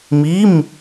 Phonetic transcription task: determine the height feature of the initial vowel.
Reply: high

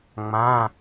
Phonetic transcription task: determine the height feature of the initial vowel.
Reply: low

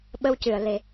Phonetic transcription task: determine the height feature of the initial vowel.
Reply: mid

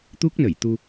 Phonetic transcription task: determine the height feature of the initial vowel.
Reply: high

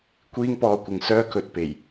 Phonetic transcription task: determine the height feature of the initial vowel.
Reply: high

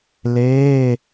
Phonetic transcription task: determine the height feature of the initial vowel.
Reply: mid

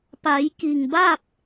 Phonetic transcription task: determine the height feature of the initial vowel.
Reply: low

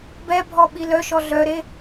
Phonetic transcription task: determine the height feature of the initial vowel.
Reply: mid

